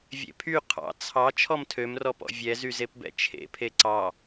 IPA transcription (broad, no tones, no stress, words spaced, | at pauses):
vʲḛpʰy qʰɑ̰ t͡sʰɑ t͡ʃʰɔmtʰømrɔpɔ̰ vʲɛzyzepbɛ̰ t͡ʃʰḛpʰe ǀɑ